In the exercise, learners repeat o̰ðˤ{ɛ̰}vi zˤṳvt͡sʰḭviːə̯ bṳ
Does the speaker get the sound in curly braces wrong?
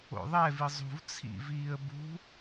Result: yes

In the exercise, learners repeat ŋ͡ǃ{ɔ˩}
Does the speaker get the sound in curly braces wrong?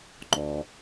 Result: no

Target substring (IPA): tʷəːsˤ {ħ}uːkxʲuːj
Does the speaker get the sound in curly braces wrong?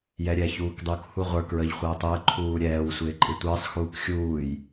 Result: yes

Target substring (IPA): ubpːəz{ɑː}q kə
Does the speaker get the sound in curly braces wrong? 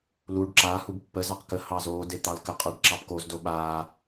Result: yes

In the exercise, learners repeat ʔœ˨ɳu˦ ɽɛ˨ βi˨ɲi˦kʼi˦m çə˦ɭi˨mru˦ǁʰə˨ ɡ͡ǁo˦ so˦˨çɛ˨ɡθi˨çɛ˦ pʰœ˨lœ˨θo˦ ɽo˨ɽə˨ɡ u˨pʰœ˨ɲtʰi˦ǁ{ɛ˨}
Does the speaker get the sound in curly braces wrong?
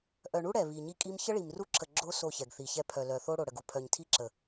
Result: yes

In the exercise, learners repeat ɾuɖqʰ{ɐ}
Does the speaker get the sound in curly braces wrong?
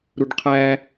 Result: yes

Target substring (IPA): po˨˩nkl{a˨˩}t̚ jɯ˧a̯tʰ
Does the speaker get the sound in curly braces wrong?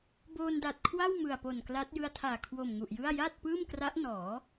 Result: yes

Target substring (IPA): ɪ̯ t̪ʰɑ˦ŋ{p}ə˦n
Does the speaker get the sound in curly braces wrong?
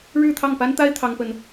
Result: no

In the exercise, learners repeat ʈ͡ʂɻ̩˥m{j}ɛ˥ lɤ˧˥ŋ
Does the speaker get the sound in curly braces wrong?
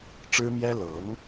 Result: no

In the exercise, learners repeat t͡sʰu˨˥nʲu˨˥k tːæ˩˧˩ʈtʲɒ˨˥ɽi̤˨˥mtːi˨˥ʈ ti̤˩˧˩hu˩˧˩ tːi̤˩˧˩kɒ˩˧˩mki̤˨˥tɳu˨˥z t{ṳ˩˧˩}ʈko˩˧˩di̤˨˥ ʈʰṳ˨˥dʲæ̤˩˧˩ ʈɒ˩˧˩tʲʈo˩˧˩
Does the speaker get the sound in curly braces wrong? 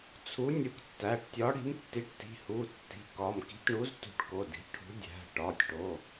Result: yes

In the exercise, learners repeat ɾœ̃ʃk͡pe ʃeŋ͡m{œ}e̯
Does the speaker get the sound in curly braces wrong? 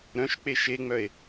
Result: no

